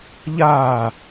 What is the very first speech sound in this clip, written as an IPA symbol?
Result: ʎ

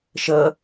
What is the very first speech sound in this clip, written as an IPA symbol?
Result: ʃ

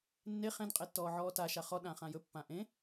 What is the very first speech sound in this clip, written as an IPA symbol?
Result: nː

